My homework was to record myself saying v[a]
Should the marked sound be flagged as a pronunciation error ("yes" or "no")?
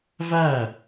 yes